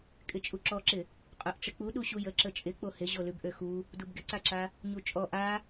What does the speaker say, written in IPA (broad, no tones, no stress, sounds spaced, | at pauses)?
kʼ ɪ t͡ʃʼ u ǁ ɔ ǁ ɪ | qʼ ø ʔ ʈ͡ʂ ɪ k͡p u ɗ u ɕ u j ə ǁ ə t͡ʃʼ ɪ k͡p o h ɪ ʑ o l ʉ b ʔ ø x u | d u b ɡ ɪ ǀ a ǁ a | ɲ u t͡ʃʼ ɔ ʔ a